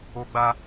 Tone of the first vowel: high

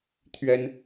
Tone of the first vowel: high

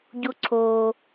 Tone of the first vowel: high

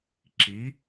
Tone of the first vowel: rising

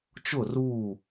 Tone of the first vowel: falling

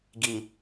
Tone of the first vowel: low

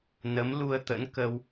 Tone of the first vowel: rising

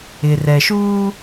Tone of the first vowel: low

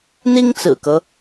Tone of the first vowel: high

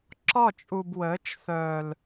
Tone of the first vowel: falling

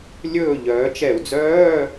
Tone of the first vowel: falling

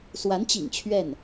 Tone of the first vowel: rising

